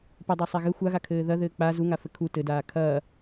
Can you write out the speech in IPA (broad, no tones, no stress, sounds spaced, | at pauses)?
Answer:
p ɘ dˤ a sˤ ɛ ɣ ɘ xʷ a ɣ a kʰ ɘː ð ɐ ð ɘː k͡p a z u ŋ a f ɘ kʰ u t ɘ d aː kʰ ɐː